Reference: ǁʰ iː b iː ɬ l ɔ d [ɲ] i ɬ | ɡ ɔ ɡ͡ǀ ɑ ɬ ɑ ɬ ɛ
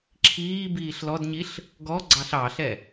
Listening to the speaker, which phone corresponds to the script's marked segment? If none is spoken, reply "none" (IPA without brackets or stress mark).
ɲ